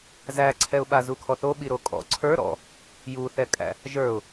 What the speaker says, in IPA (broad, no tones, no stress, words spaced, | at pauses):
zæǀʰɛʊ̯ɓa zukʰɔθo ɓiɾokʼɔ̰ ǀʰə˞ ɾɔ̰ | juθɛkʼæ̰ | ʒə˞ʊ̯